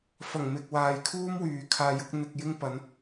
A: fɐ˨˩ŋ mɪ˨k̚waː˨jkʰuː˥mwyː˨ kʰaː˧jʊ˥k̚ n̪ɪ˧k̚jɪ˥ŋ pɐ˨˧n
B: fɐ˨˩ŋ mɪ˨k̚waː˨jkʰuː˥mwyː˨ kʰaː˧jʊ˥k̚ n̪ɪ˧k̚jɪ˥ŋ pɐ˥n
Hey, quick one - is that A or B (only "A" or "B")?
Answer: A